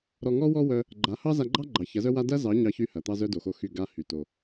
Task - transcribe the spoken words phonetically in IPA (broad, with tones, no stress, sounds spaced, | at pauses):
ɾ ɔ˧ ŋ ɔ˦ w ɔ˦ w œ˦ | ɡ͡ǃ a˨˦ h ɑ˦ z a˧ ɡ͡ǃ ɑ˦ ɡ͡ǃ ɑ˨ ç ɐ˨˦ z œ˦ w a˦ d ɐ˦ z ɑ˨˦ ɲ ɑ˦ ç y˦ h ɐ˨ t̪ ɑ˦ z œ˦ d o˨ x o˧ x y˦˨ ɡ a˦ h y˨ t o˨